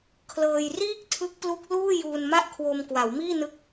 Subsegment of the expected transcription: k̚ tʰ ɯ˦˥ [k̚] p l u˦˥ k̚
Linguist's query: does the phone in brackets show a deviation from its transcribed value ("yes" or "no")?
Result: no